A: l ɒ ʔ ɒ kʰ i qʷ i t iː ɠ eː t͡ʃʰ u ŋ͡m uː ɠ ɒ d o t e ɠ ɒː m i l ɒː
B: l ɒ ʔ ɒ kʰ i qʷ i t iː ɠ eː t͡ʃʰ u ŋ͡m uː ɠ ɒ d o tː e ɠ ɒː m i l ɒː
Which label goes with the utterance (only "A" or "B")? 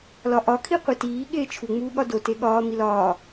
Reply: A